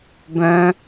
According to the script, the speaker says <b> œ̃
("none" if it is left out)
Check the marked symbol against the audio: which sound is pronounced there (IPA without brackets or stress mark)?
b